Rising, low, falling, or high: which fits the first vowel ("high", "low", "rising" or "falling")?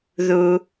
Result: low